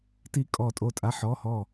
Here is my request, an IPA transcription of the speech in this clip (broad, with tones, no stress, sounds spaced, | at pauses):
t i˧˩ kʼ ɔ˧˩ tʼ o˧˩ tʼ a˨˥ ħ ɔ˩˧˩ h ɔ˧˩